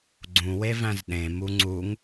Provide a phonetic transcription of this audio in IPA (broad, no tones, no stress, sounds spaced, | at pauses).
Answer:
ɡ͡ǀ ũ w e v æ̃ z ɗ ẽ m u ŋ͡ǀ u ŋ